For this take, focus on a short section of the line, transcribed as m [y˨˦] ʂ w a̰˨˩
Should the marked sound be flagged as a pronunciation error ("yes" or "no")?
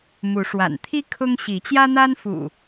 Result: yes